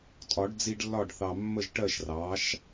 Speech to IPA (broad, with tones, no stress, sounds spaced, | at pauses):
tʼ ɒ˨˩˦ ɖ d͡z i˦ ɖ lː ɒ˥˨ ɖ θ ɑ˨ mː ə˥˨ ʒ ʈ ɜ˥˨ ʃ r ɑ˩˥ ʃ